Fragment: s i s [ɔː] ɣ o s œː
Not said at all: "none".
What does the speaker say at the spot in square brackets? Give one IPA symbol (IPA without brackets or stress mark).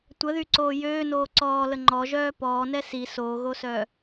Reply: oː